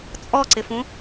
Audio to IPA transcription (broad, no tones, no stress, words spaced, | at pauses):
t͡sʼɔǀɪfũ